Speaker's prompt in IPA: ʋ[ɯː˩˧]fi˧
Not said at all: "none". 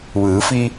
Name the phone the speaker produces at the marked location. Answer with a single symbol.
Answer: ɯː˩˧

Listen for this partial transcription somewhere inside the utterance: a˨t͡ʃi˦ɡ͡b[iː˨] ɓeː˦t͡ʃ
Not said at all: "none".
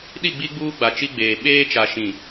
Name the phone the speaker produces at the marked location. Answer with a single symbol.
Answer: eː˨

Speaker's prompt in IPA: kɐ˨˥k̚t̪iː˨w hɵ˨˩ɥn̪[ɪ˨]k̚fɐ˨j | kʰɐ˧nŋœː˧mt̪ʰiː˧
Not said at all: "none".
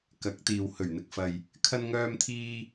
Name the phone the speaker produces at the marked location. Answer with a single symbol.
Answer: ɪ˨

